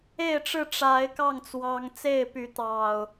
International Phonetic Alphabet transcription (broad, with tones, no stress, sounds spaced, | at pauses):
e˥˨ ɪ̯ ʈ͡ʂ ɻ̩˥˨ ʈ͡ʂ a˨˦ ɪ̯ k ɑ˥˨ ŋ t͡s w ɑ˨˦ ŋ t͡s e˥˨ ɪ̯ p y˨˦ t̪ ɑ˨˩ ʊ̯